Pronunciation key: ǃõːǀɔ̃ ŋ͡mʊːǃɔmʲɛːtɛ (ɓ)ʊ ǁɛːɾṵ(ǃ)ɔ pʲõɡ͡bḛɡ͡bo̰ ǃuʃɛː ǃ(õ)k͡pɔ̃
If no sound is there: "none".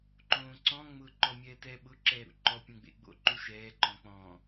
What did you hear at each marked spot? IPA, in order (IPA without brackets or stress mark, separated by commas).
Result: ɓ, ǃ, ɔ̃